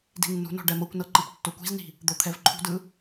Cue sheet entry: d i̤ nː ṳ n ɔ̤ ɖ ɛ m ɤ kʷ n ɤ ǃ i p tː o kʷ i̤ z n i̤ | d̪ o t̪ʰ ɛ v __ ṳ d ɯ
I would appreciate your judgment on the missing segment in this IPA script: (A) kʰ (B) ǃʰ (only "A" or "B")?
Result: B